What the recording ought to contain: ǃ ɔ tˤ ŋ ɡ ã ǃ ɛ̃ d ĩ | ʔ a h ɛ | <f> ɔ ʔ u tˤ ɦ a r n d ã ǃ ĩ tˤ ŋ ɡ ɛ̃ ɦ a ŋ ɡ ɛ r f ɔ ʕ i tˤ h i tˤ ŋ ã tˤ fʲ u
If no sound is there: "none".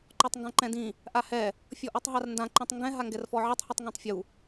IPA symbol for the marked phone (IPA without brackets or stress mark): fʲ